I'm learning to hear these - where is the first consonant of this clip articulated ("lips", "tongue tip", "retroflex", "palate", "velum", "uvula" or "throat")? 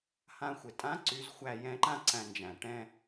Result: throat